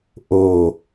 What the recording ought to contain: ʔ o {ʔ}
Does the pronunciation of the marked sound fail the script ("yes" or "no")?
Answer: yes